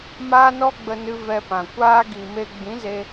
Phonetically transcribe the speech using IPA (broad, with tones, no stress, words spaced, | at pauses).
maː˦nɔ˦ɡ͡bə˧nɨ˧ vɛ˧pã˨ kʷaː˧ɡi˨ me˧ɡ͡bĩ˨˦ze˧